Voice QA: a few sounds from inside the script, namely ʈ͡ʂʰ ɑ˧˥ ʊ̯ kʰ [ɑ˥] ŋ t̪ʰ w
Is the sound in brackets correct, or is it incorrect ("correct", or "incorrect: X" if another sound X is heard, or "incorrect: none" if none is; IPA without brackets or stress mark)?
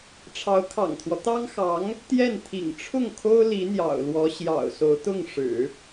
incorrect: ɑ̰˨˩